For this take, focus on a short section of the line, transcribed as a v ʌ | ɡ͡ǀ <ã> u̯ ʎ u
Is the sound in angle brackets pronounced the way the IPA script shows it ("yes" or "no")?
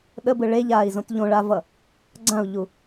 yes